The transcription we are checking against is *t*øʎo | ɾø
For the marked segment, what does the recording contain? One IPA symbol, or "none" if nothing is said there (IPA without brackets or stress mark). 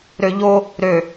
ɾ